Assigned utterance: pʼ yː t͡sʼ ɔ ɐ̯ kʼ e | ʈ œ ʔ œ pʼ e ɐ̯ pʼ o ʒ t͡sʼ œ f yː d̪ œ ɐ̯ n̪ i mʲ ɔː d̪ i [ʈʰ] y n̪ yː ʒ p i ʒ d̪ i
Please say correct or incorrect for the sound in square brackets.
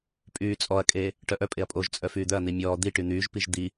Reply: incorrect